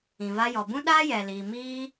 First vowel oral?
no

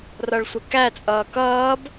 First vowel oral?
yes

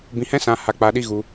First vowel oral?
no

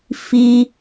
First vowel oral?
yes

